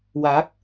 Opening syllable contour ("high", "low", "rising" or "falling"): rising